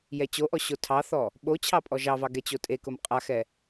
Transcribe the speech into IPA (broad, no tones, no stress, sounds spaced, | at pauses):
j ɛ t͡ɕ o ʔ ɔ ɕ o tʰ ɑ θ ɔ | ɓ o t͡ɕʰ ɑ pʼ ɔ ʒ ɑ v ɑ ɡ ɛ t͡ɕ o tʼ e k ʊ m qʼ a x ɛ